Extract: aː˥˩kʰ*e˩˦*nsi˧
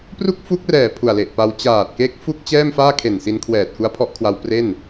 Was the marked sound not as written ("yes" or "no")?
yes